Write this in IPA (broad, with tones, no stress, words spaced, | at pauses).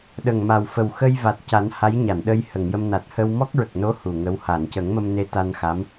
ɗə˨˩ŋma˨˩wfə˨˩w xə˧j va˨˩t̚ca˨˩˦n ha˧˥jɲa˨˩˨nɗə˧j hə˨˩˨ŋjə˧m na˨˩t̚hə˧w mɔ˦˥k̚ɹə˨˩k̚no˧˥ hu˨˩ŋə˧˥w ha˨˩˨n cə˨˩˦ŋmə˧mne˧˥ t̪a˧nxa˧˥m